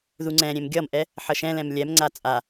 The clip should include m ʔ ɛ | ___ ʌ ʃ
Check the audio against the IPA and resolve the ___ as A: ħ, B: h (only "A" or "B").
A